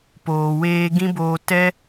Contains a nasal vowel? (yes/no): yes